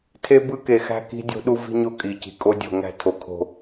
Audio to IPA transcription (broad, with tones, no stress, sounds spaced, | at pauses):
tʰ e˦ b ɯ˦ k e˨ x æ̤˦ k i̤˦ dʲ o̤˦ ɗ u˦ v i̤˦ ɲ o˦ kʼ i˨ c i̤˨ kʼ o˦ dʲ o̤˨ ŋ æ̤˦ tʰ o˨ kʰ o̤˦˨